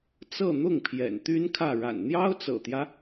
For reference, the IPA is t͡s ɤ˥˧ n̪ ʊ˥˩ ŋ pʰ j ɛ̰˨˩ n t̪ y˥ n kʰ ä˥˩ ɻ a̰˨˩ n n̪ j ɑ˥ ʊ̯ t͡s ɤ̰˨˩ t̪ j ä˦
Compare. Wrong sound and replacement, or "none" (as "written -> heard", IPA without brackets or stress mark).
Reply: none